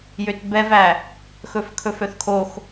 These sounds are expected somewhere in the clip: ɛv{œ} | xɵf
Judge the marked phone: incorrect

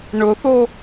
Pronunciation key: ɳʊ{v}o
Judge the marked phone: incorrect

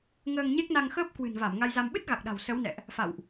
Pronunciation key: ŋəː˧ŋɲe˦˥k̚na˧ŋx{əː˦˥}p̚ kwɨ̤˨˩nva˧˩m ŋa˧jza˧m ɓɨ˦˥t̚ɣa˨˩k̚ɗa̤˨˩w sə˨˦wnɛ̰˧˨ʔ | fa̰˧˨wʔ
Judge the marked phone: correct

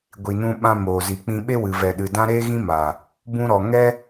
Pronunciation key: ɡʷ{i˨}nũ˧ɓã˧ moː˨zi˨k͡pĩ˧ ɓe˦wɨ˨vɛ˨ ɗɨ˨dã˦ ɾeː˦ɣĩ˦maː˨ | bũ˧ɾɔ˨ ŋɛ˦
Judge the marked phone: correct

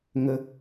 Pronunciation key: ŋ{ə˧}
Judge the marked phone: correct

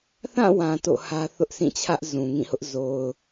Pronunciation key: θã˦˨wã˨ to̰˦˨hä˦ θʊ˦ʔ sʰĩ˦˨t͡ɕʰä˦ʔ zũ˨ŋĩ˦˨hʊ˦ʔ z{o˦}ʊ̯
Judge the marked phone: incorrect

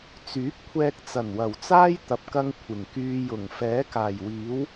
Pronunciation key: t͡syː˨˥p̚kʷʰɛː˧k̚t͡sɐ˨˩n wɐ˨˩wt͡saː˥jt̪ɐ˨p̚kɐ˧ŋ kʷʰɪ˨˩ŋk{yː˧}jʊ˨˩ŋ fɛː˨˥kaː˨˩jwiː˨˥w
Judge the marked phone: correct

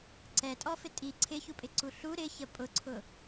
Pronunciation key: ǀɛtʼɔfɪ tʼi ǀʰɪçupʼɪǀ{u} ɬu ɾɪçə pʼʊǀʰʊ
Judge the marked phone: correct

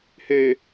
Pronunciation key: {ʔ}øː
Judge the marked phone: incorrect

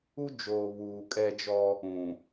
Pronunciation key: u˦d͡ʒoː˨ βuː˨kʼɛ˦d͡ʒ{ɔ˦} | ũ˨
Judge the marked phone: correct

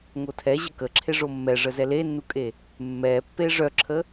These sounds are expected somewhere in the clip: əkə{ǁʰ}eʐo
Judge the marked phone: correct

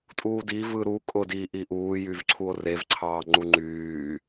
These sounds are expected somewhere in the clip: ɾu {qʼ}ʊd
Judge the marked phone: incorrect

